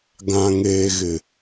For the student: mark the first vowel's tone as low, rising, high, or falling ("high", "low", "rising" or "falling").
low